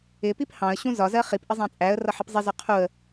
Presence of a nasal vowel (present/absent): present